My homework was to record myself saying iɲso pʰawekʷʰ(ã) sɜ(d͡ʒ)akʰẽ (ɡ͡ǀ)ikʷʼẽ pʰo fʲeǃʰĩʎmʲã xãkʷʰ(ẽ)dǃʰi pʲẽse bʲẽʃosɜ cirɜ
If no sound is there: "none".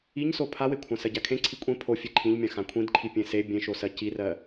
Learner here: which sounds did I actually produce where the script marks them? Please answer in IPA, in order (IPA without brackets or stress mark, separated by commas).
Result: ã, ɟ, ǀʰ, ĩ